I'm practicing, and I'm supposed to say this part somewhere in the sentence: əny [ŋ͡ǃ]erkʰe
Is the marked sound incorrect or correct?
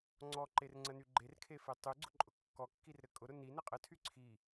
incorrect